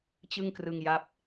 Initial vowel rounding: unrounded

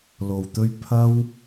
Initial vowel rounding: rounded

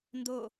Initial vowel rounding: rounded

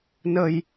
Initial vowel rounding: unrounded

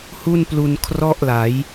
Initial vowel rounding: rounded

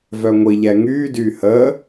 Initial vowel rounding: rounded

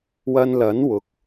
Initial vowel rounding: unrounded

